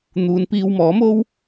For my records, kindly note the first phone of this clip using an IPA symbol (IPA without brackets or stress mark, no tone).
n̪